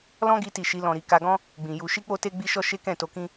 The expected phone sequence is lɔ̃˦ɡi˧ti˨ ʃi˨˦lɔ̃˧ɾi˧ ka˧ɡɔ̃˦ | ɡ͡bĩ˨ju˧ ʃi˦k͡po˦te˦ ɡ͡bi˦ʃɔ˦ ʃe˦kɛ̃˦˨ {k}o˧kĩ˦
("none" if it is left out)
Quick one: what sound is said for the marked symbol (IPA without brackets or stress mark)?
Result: t